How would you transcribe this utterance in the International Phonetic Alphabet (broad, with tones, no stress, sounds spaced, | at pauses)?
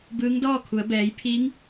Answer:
b ɯː˧˥ ŋ d ɔː˥˨ kʰ u˩˧ ə̯ b ɛː˩˧ j pʰ iː˧˥ ŋ